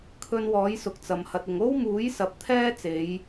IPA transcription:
kʰ ɵ˧ n w ɔː˨˥ j s ʊ˨ k̚ t͡s ɐ˨ m h ɐ˨ t̚ ɪ˨ ŋ o˥ w m uː˨˥ j s ɐ˨˥ p̚ t̪ʰ ɛː˥ t͡s e˨˧ j

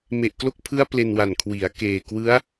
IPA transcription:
m e˨˩ ʔ k l o˦˥ k̚ pʰ ɯ˦˥ a̯ p l e˧ n w a˨˩ n kʰ w i˩˦ a̯ k eː˨˩ k w ɯ˦˥ a̯

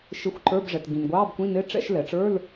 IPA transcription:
ʃ ɪ˧˥˧ xʷ ǃ ə˞˧˥˧ b ʐ ɛ˩ t ɡ ĩ˩ n ɡʷ ɑː˧˥˧ b kʷ ĩ˧˥˧ n ɪ˧˥˧ ʈ͡ʂ ɛ̰˧˥˧ ʃ l ɛ˩ ʈ͡ʂ ə˞˧˥˧ l

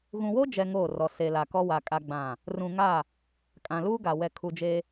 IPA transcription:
ɣ ũ˨ w o˦ d͡ʒ ɛ˨ ŋ oː˦˨ r ɔ˨ s e˨ l a˨ k ɔ˦ w a˨ kʼ a˦ ɡ͡b ã˦˨ | r ũ˨ ŋ a˦˨ | kʼ ã˨ l uː˦ ɡ a˨ w ɛ˨ kʰ u˨ d͡ʒ e˦

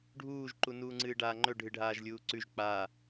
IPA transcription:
ɖʱ uː ʒ ǃ u n uː ŋ͡ǀ ɨː ɖ aː ŋ͡ǃ ɵ ɖʱ ɨ ɖʱ aː ʒ lʲ uː ǀ ʉ ʒ k͡p aː

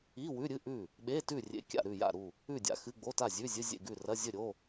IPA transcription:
i˧˥˧ w ʉ˧˥˧ ɾʲ ɨ˧˥˧ ʔ ʉ˥˨ | ɓ e˧˥˧ t ʉ˥˨ rʲ ḛ˧˥˧ kʲ a̰˥˨ ɾ ʉ˥˨ j a̰˥˨ ɾ u˥˨ | ʉ˥˨ dʲ a̰˧˥˧ x ɨ˧˥˧ ɡ͡b o˧˥˧ t a˥˨ zʲ ʉ˧˥˧ zʲ ɨ˧˥˧ zʲ ḛ˥˨ ɡ ʉ˥˨ r ɐ˧˥˧ zʲ ɵ˥˨ ɾʲ o˧˥˧

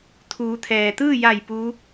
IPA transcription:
t̪ʰ uː˩˧ t̪ʰ ɛː˩ t̪ ɯː˥˨ j a˧˩ j p u˧˥

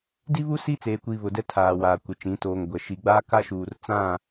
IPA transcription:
d i˦ β u˦ s i˦ t͡s eː˨ kʷ iː˨ β ʊ˨ d ɛ˦ tʰ aː˨ w aː˨ kʷ ɪ˨ t͡ʃ ĩ˨˦ t oː˨ ŋ ɡʷ ɛ˨ ʃ i˨ ɡ͡b aː˦ k a˦ ʃ uː˨ r t͡s ã˦˨

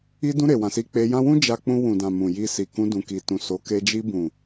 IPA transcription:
i˧ d ũ˧ ɾ e˨ w ã˨ s i˧ k͡p e˧ j ã˦ w ũ˦ d͡ʒ a˧ k͡p ũ˧ w ũ˨ d ã˨ m ũ˨ j i˧ s i˨ k ũ˧ d ũ˨ k i˨ t ũ˨ s o˨˦ k e˧ d͡ʒ i˧ b ũ˨

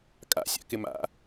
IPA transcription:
kʼ a̰ sʲ a̰ k ɪ m a̰

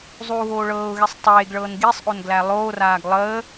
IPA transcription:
zˤ uː ɣ oː ɭ ɤː ʊ̯ ɣ e sˤ tˤ eː ɡ ɭ ɤː n ɡ i sˤ ʔ o n ɡ l æ lˠ oː r aː ɡ lˠ əː

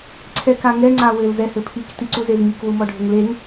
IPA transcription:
ǀʰ ɛ k a ŋ ɛ ŋ͡ǀ a w ɘ l z ɛ h ɘ pʰ i k t i ǀ u z e z m i k w u m ɔ ɖʱ ɘ ŋ l e ŋ

